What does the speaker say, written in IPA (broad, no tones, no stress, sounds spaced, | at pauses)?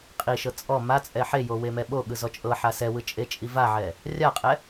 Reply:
qʼ i ʃ ɤ t͡sʼ ɔ m a t͡sʼ ɛ ħ e j o w e m ɛ ɓ o ɠ ɯ z ɔ t͡ʃʼ ɤ ħ a s ɛ w ɯ t͡ʃʼ e t͡ʃʼ i v a ʕ ɛ | rʲ a qʼ ɛ